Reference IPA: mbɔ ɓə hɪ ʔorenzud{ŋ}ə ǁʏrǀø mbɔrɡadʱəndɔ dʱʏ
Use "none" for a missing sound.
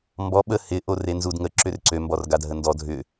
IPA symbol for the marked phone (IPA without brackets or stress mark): ŋ